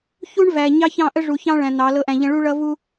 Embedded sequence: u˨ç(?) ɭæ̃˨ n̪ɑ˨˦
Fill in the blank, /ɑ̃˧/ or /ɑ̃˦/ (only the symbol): ɑ̃˦